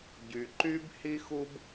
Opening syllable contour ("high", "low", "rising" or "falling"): low